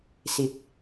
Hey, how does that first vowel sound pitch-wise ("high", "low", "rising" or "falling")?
rising